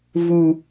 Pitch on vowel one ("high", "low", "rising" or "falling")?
high